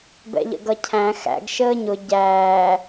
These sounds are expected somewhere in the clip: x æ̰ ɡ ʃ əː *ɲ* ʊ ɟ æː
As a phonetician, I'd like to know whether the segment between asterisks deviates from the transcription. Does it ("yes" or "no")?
no